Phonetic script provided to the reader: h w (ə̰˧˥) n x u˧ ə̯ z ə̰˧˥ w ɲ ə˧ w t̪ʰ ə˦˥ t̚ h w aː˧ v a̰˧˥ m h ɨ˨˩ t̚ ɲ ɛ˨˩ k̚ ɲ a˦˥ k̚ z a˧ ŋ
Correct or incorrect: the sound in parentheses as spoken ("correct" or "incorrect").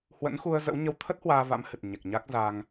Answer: correct